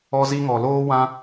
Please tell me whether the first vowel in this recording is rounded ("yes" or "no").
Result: yes